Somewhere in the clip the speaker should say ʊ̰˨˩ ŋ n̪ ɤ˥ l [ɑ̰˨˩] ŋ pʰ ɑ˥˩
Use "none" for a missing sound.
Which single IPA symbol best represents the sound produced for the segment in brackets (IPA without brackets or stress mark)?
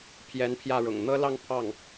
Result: ɑ˥˧